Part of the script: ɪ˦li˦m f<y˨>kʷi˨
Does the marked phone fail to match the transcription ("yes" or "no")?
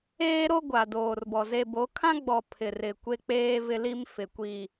yes